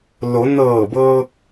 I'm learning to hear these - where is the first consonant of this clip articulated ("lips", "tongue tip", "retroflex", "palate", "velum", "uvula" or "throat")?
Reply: tongue tip